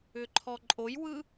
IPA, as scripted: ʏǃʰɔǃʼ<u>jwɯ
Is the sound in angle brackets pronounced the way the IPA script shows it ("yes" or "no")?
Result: no